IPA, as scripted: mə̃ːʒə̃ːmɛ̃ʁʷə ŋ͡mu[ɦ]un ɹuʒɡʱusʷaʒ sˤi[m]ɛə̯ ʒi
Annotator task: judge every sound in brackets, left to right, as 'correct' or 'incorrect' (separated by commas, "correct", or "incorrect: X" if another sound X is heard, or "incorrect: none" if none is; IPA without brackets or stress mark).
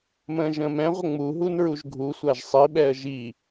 correct, incorrect: ɓ